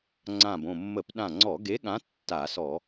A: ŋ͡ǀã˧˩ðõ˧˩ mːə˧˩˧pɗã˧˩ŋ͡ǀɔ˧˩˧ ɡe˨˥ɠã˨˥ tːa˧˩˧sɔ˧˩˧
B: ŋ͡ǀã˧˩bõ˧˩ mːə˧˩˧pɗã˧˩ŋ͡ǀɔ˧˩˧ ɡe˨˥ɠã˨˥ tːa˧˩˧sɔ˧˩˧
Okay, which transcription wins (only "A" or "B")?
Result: B